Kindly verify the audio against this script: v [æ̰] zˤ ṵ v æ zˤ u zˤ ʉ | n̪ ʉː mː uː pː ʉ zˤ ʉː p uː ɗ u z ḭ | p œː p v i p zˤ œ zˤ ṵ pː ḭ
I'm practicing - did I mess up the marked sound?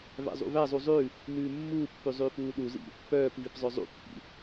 no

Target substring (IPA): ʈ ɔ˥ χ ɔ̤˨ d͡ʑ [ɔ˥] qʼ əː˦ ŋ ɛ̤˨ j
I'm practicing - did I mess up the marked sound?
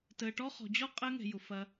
no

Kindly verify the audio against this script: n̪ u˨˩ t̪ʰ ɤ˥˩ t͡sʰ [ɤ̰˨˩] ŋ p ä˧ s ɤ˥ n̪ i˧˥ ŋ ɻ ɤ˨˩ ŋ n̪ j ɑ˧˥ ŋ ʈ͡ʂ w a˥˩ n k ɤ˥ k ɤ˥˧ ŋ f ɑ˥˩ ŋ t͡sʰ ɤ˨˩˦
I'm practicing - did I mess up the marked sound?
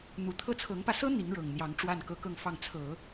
yes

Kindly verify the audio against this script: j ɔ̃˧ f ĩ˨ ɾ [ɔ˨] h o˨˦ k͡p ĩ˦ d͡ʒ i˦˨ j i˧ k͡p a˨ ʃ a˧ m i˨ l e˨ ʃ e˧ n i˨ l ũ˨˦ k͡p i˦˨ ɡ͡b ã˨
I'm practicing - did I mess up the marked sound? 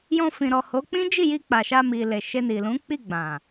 no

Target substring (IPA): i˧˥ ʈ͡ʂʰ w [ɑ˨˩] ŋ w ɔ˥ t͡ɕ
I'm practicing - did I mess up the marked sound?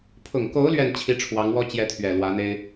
yes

